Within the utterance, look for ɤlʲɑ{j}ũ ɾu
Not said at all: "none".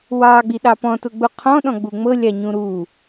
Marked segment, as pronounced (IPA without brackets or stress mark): ɲ